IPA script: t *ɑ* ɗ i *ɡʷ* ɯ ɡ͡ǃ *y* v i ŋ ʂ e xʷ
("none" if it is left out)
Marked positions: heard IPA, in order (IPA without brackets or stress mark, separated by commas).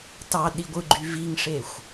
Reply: ɑ, ɡʷ, y